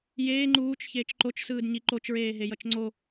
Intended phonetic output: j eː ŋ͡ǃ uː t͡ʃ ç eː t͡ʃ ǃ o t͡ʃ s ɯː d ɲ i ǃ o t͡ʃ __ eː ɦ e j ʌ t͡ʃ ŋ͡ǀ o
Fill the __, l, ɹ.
ɹ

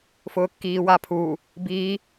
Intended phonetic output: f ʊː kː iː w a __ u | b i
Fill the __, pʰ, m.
pʰ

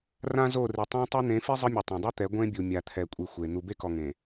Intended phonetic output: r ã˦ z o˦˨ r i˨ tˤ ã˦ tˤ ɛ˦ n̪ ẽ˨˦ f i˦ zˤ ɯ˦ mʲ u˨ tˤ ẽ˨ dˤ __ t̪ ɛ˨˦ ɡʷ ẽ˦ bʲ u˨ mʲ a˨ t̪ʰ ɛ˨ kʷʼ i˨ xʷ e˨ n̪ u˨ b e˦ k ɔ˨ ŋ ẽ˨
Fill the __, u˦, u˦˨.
u˦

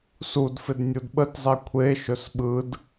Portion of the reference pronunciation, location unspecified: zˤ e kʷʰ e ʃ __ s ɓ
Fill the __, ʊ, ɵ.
ɵ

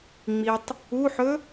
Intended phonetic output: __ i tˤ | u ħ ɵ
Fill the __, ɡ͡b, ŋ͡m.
ŋ͡m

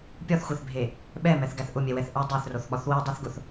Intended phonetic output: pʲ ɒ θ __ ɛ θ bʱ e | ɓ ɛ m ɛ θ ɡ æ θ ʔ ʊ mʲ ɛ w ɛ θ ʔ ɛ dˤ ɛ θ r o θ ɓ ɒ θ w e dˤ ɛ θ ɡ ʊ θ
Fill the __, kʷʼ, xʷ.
xʷ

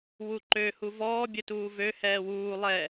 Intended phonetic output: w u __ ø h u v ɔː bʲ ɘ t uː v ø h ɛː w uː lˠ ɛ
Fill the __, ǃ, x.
ǃ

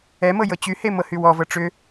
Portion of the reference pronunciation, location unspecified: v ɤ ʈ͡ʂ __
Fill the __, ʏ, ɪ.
ʏ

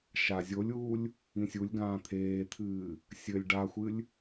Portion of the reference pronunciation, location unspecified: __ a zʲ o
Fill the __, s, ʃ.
ʃ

